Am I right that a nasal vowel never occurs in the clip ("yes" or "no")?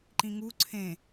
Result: no